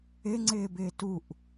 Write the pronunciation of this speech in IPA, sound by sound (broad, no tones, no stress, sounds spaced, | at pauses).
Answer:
ɪ ŋ͡ǀ ɪː b ɪː t u ʔ